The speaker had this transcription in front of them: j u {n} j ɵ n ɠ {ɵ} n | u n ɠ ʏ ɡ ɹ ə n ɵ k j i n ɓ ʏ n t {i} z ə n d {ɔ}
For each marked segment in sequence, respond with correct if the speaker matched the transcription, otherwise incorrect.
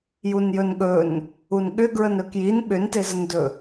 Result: correct, correct, incorrect: e, incorrect: ɵ

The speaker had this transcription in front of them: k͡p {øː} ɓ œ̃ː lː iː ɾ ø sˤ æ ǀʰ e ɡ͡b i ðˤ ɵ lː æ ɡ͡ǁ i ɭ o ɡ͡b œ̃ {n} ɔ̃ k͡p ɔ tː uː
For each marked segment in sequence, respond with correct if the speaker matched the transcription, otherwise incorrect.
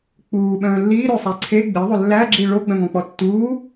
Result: incorrect: uː, incorrect: ŋ

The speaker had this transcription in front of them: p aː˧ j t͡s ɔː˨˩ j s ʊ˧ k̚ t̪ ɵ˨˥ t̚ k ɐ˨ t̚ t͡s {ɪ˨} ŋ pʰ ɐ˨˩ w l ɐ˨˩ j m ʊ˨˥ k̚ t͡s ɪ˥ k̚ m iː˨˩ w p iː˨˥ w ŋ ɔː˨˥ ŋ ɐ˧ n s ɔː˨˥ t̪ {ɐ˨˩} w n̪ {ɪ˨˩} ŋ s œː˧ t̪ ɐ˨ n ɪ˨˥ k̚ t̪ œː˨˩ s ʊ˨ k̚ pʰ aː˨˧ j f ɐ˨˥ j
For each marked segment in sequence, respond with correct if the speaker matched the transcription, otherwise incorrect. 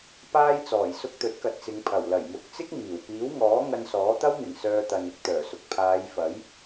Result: incorrect: ɪ˨˧, incorrect: ɐ˥, correct

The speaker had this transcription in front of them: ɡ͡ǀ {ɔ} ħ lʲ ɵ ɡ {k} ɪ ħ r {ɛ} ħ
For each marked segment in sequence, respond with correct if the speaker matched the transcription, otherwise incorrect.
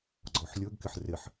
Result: correct, correct, incorrect: ɪ

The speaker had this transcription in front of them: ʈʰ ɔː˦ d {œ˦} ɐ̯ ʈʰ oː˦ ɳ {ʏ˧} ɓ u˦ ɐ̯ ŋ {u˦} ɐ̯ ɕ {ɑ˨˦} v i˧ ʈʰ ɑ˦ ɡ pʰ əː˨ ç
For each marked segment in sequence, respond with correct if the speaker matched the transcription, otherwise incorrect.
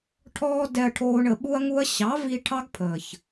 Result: incorrect: ɛ˦, incorrect: ə˧, correct, correct

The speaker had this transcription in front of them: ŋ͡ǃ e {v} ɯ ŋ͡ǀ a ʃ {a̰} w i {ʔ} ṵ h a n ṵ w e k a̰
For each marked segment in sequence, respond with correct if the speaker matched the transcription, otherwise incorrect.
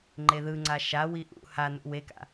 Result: incorrect: ð, incorrect: a, correct

